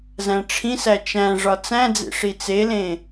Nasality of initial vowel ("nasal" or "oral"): nasal